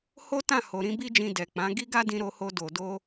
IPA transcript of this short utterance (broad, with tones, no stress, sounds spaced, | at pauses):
h o˦ t ã˦˨ h o˨ ɾ ĩ˨˦ b i˦ d͡ʒ ĩ˧ d ɛ˨ k͡p ã˨˦ ɡ i˦ ɡ a˦ d ĩ˧ ɾ o˧ h o˧ d o˨ d o˧